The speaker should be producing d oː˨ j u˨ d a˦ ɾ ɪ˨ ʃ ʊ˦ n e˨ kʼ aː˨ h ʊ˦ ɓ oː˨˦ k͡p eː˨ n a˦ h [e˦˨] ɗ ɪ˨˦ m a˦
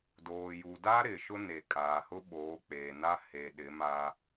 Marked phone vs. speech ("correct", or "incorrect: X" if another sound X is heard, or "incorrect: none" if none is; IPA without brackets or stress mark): incorrect: e˨